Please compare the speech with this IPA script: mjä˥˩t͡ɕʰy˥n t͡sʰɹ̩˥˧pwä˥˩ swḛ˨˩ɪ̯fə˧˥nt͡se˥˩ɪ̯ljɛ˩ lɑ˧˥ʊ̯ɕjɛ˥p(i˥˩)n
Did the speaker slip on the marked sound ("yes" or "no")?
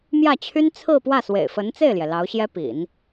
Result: yes